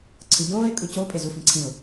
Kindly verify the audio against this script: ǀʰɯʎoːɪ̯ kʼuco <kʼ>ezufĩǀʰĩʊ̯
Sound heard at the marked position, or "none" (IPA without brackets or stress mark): pʼ